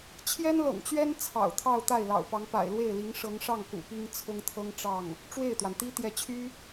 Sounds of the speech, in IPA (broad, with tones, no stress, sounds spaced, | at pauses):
t͡ɕʰ j ɛ˥ n l ɤ̰˨˩ ŋ t͡ɕ ɥ ɛ˥ n t͡sʰ ɑ̰˨˩ ʊ̯ t̪ʰ ɑ˥˧ ʊ̯ t̪ a˥˩ ɪ̯ l ɑ̰˨˩ ʊ̯ p ɑ˧˥ ŋ p a̰˨˩ ɪ̯ l w e˥˩ ɪ̯ l i˧˥ ŋ ʂ ɤ˧˥ ŋ ʂ ɑ˥˩ ŋ k ṵ˨˩ p i˥ ŋ t͡sʰ ʊ˥ ŋ t̪ʰ ɤ˥ ŋ ʈ͡ʂ ɑ˥˩ ŋ | ʈ͡ʂ w e˥˩ ɪ̯ t̪ w a˩ n t̪ i˥ t̪ j ɛ˧˥ t͡ɕʰ y˥